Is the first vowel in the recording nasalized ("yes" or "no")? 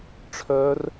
no